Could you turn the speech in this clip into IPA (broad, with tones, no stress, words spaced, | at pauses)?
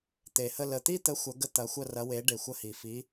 t̪e˨˩hə˥˧ lə˨˩t̪i˥˧t̪ə˨˥ xʷɐ˨˥ ɡə˥˧t̪ɐ˨˥xʷɐ˥˧ rɐ˨˥ we˨˥ ɖe˨˩xʷɐ˥˧hi˨˩ fi˨˥